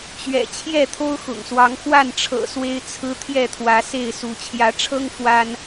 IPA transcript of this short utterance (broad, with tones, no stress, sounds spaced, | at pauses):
t͡ɕ ɥ ɛ̰˨˩ t͡ɕʰ j ɛ˥˨ t̪ʰ o˦ ʊ̯ x ʊ̰˨˩ ŋ s w ɑ˨˦ ŋ x w a˥˨ n ʈ͡ʂʰ ɤ̰˨˩ s w e˦ ɪ̯ t͡sʰ ɹ̩˦ t̪ʰ j ɛ˥˨ t̪ʰ w ä˨˦ s e˥˨ ɪ̯ s u˨˦ t͡ɕʰ j ä˨˦ ʈ͡ʂʰ ɤ˦ ŋ f w a˦ n